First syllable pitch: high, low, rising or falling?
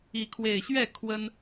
rising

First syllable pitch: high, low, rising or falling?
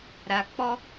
low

